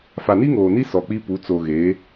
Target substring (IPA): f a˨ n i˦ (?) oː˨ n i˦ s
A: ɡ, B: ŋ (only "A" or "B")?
B